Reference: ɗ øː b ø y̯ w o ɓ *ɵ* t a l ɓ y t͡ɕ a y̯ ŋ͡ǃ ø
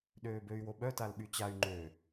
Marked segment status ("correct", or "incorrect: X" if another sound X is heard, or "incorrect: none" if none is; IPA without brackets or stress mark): incorrect: œ